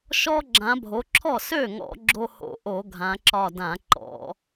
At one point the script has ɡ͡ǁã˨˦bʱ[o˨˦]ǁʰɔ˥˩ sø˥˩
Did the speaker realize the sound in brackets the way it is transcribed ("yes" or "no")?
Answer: yes